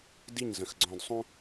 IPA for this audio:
d i˦˨ ɲ z ə̃˨ x ɡ͡ǀ ɔ̃˨ d sˤ ũ˦

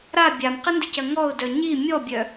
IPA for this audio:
ɾ a bʲ a m q ɪ n d ɪ c ɐ ŋ ɔ ʊ̯ d œ ɲ i mʲ ɔ bʲ œ

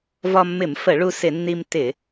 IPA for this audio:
v ɒ˧ mː ɪ˧˩˧ m f ə˧˩˧ ɭ u˧ s ɪ˧˩˧ nː i˧ m t ɪ˧˩˧

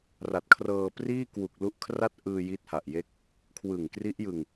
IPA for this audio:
r a˨˩ t̚ kʰ r ɤː˧ p r iː˥˩ k w u˨˩ k̚ l u˦˥ ʔ kʰ r a˥˩ t̚ ʔ ɯː˧ j i˦˥ t̚ h a˨˩ ʔ j e˦˥ k̚ | kʰ w ɯ˨˩ ŋ k r i˦˥ ʔ j ɯ˧ ŋ

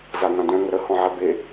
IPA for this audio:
z a ŋ ã d œ̃ ŋ ə ɾ ə h ɔ̃ ʕ ɛ b e

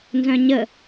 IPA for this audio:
n z œ̃ ɲ ə

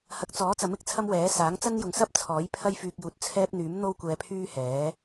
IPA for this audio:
h ɐ˨˥ k̚ t͡s ɔː˨˥ t͡s ɐ˨˥ m ɪ˧ k̚ t͡sʰ ɐ˥ m w ɛː˨˥ s aː˨˥ ŋ t͡s ɐ˥ n j ʊ˨ ŋ s ɐ˥ p̚ t͡sʰ ɔː˨˥ j pʰ ɐ˥ j f yː˧ k̚ j uː˨ t̚ t͡sʰ ɛː˥ p̚ n̪ yː˨˥ m n̪ o˥ w kʷ ɛː˧ pʰ yː˥ h ɛː˨˥

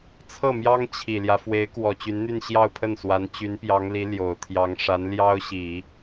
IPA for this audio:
t͡sʰ ɤ˥˩ m j ɑ˥ ŋ t͡ɕʰ i˨˩ l j ä˦ f w e˧˥ ɪ̯ k w ɔ˨˩ t͡ɕ y˧˥ n n̪ y˥˧ n ɕ j ɑ˥˧ ʊ̯ pʰ ə˥˩ n s w a˧˥ n t͡ɕ y˧˥ n p j ɑ˧˥ ŋ l i˧˥ l j o˨˩ ʊ̯ t̪ʰ j ɑ˧˥ ŋ ʂ a˧˥ n l j ɑ˥ ʊ̯ ɕ i˨˩˦

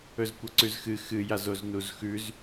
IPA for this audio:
ɵ z kʷ ɐ ǀ ʉ z x ɨ x ɨ j a z o z n u z x ʉ z

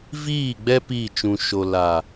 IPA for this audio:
v iː˦˨ ɡ͡b ɛ˦ p iː˦˨ t͡ʃ ũ˨ ʃ o˨ l a˨

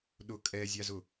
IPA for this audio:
ɗ ʊ kʼ ɛ zʲ a z ʊ

